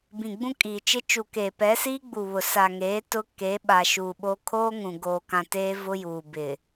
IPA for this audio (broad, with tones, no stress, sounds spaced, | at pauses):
b ĩ˨ ɡ͡b ũ˦ kʼ iː˨ t͡ʃ ɪ˦ t͡ʃ u˨ k eː˨ p ɛ˨˦ s iː˦ ɡ͡b u˨ β ʊ˨ s a˨ ŋ eː˨˦ t ʊ˦ k e˨˦ ɓ a˨ ʃ u˨ ɓ o˦ kʰ oː˦ ŋ ũ˨ ɡ oː˨ k ã˨ t eː˦ v ʊ˦ j uː˨ b ɪ˨